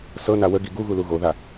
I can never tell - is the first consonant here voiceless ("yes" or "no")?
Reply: yes